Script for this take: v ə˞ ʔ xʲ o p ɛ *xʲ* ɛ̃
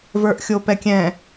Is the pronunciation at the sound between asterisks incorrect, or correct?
incorrect